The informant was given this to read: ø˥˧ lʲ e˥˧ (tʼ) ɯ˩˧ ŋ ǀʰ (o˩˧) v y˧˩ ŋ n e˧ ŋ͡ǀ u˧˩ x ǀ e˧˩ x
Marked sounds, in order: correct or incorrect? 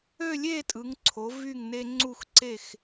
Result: correct, correct

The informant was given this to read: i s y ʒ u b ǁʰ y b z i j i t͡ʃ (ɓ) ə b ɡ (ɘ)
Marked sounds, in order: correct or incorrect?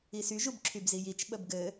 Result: correct, correct

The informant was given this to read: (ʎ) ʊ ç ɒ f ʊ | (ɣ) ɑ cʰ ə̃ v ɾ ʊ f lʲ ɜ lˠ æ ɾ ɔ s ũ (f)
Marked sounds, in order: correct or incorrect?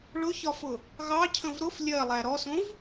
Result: incorrect: ɭ, correct, incorrect: v

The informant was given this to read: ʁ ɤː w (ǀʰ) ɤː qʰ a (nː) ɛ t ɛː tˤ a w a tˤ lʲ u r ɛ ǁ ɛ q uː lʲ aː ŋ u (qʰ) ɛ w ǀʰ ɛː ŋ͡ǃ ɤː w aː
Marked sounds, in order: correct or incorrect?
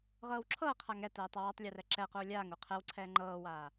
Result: incorrect: ǁʰ, incorrect: ŋ, correct

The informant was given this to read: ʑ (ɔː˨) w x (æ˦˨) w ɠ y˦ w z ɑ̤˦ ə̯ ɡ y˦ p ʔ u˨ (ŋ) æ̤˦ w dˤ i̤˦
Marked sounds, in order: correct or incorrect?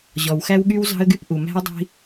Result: incorrect: ɔ˨, incorrect: æ˦, incorrect: m

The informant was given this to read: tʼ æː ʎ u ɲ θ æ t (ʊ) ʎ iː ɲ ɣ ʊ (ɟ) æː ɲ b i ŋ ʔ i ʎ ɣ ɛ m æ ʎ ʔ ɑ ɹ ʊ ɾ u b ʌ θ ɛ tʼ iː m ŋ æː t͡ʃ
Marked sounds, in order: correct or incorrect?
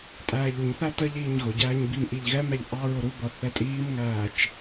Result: incorrect: ə, correct

